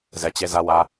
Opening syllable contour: low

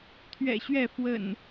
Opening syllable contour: low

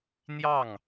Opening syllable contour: falling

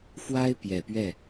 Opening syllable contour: high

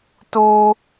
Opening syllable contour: high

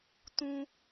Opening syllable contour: low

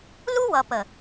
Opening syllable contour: high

